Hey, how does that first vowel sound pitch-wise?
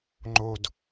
low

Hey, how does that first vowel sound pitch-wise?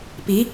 rising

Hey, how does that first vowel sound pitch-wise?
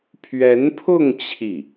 rising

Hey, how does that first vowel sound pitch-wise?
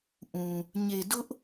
low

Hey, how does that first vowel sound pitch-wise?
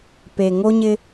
low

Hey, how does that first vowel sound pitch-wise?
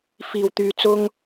low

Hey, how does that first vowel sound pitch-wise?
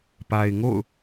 low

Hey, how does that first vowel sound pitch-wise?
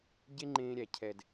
high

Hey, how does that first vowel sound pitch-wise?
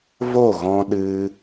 falling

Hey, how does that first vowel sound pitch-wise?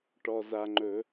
low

